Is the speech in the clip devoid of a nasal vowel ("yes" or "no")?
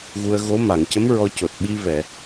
yes